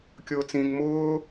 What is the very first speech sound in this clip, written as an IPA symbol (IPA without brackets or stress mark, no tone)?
kʲ